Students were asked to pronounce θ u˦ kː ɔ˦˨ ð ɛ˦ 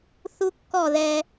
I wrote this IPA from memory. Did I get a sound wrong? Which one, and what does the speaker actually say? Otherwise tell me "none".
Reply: none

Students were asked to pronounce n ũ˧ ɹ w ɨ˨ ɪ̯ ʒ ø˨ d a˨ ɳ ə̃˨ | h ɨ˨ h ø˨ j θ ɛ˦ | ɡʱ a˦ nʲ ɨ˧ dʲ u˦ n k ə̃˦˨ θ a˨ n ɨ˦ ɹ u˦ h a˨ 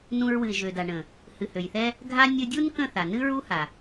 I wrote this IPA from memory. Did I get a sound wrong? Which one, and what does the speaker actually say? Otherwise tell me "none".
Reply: none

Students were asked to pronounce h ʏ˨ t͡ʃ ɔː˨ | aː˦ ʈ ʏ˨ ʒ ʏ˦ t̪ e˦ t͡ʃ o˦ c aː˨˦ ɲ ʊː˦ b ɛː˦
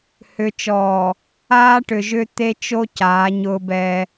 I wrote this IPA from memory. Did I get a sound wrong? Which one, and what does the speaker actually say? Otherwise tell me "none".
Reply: none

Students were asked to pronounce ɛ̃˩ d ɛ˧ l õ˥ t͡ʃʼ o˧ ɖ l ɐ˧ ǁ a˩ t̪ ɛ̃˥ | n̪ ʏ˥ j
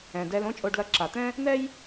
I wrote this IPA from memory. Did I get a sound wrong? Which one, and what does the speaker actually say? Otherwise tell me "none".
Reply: ʏ˥ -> ɛ˥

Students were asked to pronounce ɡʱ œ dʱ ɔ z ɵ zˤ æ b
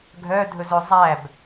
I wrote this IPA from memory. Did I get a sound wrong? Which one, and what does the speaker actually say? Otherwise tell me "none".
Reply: ɔ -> ɵ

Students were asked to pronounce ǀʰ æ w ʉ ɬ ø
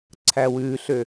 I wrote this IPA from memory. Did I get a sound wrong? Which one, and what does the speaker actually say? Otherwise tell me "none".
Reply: none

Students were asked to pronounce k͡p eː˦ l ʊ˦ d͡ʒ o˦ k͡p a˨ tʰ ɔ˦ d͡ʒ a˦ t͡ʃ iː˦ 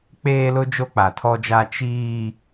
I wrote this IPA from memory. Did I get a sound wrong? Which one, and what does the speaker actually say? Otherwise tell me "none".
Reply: none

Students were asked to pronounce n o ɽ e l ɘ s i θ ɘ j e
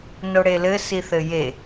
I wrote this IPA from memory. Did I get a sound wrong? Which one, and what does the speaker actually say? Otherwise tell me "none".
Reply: none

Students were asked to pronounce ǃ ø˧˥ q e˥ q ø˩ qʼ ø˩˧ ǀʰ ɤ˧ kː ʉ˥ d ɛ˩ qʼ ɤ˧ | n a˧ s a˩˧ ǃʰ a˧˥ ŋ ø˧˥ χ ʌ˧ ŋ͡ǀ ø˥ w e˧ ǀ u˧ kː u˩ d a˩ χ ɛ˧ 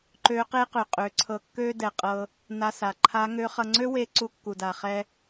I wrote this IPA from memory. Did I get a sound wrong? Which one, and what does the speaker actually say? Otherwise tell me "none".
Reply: ʉ˥ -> ø˥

